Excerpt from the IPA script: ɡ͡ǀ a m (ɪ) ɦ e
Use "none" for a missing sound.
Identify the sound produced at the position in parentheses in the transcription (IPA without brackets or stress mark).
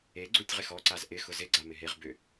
ɪ